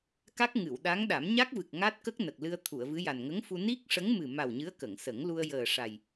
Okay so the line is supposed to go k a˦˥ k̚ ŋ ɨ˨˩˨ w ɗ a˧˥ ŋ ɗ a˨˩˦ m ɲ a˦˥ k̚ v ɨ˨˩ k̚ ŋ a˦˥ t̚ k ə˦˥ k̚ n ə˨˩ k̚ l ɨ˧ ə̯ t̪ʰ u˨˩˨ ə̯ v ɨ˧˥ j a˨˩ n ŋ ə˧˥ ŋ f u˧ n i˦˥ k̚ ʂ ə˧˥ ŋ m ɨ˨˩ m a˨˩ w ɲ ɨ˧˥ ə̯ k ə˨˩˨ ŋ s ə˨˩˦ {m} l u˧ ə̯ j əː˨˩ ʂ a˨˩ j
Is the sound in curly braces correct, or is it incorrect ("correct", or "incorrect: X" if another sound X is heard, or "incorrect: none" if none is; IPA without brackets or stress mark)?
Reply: incorrect: ŋ